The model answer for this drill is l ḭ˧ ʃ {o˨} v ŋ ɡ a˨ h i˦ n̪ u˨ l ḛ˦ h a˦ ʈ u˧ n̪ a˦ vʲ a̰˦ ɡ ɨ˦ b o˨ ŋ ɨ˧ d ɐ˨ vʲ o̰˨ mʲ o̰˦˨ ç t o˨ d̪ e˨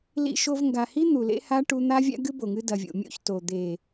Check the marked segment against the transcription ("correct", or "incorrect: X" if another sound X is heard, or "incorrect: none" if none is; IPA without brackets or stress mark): incorrect: o˧